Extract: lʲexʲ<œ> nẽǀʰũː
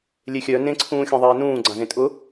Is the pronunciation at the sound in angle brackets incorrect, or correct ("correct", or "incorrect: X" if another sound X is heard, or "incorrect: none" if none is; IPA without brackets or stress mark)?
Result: correct